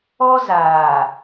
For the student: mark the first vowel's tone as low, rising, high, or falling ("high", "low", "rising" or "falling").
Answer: high